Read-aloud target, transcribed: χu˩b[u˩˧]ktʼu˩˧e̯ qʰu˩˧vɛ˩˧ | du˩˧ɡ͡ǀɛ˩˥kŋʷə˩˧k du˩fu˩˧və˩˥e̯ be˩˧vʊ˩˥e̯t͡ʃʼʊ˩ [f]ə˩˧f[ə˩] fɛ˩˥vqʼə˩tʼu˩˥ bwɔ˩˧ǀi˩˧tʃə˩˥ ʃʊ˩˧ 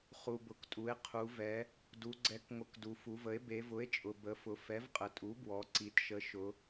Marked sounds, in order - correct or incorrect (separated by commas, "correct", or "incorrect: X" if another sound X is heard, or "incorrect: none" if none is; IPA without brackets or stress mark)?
incorrect: ʊ˩˧, incorrect: b, incorrect: ʊ˩